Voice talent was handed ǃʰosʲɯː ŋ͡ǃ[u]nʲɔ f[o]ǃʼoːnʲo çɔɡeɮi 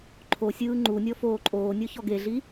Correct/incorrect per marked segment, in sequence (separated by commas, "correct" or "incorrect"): correct, incorrect